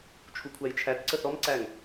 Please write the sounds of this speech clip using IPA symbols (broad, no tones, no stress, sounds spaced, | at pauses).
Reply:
t͡ʃʰ u kʷʰ æ j t͡ʃʰ æ t ǀ ə θ ɔ m ǀ æ ŋ